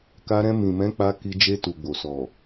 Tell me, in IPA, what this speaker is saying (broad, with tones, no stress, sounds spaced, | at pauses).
k a˧ ɾ ɛ̃˧ m ĩ˨ m ɛ̃˨˦ k͡p a˧ k i˧ d͡ʒ e˧ t u˨ ɡ͡b o˨ s ɔ˨